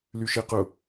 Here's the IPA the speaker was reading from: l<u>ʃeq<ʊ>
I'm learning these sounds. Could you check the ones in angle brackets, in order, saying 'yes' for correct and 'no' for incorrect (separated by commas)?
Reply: no, yes